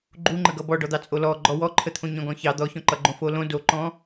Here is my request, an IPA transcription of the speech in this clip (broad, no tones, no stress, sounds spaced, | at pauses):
ɡ͡ǃ u ŋ͡ǃ ə ɡ ʌ b ɔ ɖ ɔ d̪ ɑ t͡sʼ o l ɔ ɡ͡ǃ ɔ w ɔ ǃʰ ə t̪ʰ õ ɲ ɔ̃ ɡ ɔ̃ ç ɑ d̪ ɔ ç ɔ̃ ǃ ʌ ɡ͡ǃ õ f o l õ d o ǃ ɔ̃